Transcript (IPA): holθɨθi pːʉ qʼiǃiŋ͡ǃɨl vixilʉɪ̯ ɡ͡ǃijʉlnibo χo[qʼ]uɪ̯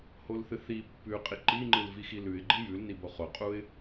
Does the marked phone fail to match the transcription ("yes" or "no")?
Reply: no